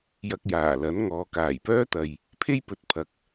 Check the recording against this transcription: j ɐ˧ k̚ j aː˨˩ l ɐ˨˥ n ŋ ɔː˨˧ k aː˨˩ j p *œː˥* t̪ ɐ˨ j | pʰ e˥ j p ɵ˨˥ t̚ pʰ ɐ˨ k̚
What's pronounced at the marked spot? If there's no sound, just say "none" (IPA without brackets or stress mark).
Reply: œː˥